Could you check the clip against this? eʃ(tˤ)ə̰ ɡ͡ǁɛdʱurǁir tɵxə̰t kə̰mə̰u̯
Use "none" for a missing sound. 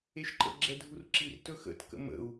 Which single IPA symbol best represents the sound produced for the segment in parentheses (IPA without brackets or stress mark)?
ǃ